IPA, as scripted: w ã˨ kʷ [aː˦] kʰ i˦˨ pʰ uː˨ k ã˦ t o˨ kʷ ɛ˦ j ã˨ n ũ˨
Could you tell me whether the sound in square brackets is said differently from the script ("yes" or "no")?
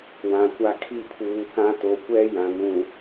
yes